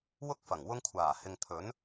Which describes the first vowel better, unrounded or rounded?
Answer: rounded